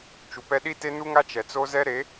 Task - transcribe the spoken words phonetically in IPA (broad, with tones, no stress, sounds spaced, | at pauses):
t͡ʃ u˨ p ɛ˦ ɗ i˦ t e˦ n u˦ ŋ a˦ t͡ʃ ɛ˨ t͡s o˦ z ɛ˦ ɾ e˨˦